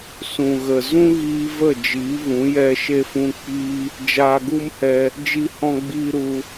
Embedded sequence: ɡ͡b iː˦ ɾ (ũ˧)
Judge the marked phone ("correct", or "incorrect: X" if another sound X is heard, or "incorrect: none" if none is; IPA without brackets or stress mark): incorrect: u˧